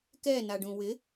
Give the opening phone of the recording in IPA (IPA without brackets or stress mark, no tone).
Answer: k